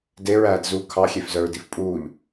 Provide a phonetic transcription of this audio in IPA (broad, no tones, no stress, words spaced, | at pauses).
deɹæːdzuː kʰɑxʲefzœɹdif pʼuːʎ